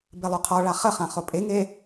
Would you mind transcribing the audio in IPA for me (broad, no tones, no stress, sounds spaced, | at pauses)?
b e lˠ o qʰ ɔ ɭ a χ ə χ ã χ o pʼ e ŋ e